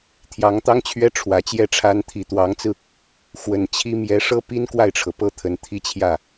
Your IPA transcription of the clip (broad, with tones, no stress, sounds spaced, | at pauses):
t̪ʰ j ɑ˧˥ ŋ t̪ ɑ˥ ŋ t͡ɕʰ ɥ ɛ˥ ʈ͡ʂʰ w ä˧˥ t͡ɕ j ɛ˥˩ ʈ͡ʂʰ a˥ n t̪ʰ i˨˩ t̪ w ɑ˧˥ ŋ t͡s ɹ̩˧ | x w ə˨˩ n t͡ɕʰ i˥ m j ɛ˧˥ ʂ ɤ˥ p i˥ n k w a˥˩ ɪ̯ ʈ͡ʂʰ ɤ˩ p ɤ˥ t̪ʰ ə˧˥ n t̪ʰ i˥˧ t͡ɕʰ j ä˥˩